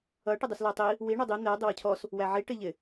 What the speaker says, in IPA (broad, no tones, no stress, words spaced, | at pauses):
ʌ ʈɪdˤuslætˤi | wi ɳədˤi n̪ɛ dˤɪwʊcʰɔs | wæʕi ʈɪʎɪ